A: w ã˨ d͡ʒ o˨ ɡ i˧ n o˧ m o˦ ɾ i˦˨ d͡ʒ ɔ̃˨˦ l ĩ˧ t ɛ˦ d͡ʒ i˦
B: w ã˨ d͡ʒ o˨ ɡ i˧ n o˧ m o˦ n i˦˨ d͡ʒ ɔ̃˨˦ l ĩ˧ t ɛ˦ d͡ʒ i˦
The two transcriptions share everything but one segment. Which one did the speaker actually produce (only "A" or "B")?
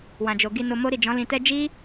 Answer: A